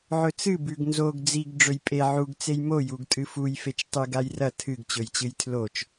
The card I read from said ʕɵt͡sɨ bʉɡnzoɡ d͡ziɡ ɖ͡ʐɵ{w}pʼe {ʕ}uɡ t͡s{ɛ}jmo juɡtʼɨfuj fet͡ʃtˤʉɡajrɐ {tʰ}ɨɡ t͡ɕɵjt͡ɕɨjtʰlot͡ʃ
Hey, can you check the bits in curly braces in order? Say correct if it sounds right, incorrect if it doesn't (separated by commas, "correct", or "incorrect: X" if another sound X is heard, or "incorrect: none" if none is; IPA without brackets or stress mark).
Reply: incorrect: j, correct, incorrect: e, correct